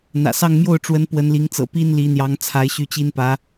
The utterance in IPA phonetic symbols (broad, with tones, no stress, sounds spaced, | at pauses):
n̪ ä̰˨˩ s ɑ˥˧ ŋ m j o˥˩ ʊ̯ ʈ͡ʂ w ə˧˥ n p w ə˧˥ n l i˧˥ ŋ t͡s ɤ̰˨˩ p i˥ n l i˧˥ n̪ j ɑ˧˥ ŋ t͡sʰ a˧˥ ɪ̯ ɕ y˥˩ t͡ɕ i˥ n p ä˧˥